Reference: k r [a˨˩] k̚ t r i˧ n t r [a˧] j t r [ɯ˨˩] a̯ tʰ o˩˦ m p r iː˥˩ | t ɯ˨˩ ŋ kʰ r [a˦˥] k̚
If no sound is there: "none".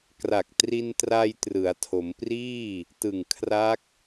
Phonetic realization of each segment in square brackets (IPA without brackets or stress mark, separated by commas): a˨˩, a˧, ɯ˩˦, a˦˥